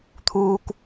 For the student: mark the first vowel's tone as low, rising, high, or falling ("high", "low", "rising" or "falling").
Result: low